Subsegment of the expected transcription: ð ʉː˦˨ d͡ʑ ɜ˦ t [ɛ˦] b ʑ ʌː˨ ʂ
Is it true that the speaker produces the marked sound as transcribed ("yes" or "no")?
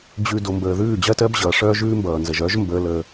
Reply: no